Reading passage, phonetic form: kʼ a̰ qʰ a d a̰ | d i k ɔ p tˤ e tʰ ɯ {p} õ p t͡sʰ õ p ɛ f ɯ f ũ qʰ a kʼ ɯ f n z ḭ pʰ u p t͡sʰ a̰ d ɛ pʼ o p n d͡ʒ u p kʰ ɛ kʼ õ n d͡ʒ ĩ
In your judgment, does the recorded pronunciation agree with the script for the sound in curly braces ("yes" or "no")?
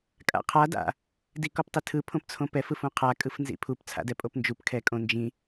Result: no